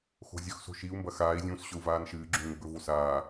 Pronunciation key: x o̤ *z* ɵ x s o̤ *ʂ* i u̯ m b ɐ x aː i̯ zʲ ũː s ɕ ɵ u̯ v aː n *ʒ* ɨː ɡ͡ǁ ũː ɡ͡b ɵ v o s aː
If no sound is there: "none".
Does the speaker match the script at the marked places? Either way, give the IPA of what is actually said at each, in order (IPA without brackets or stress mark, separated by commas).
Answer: zʲ, ʃ, ʃ